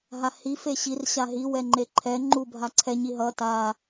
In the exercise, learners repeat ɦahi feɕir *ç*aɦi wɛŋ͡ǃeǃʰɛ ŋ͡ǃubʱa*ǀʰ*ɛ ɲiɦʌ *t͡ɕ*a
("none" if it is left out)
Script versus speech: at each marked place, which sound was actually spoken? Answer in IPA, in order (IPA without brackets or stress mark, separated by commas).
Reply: ɕ, ǀʰ, t